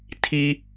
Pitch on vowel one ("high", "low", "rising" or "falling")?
low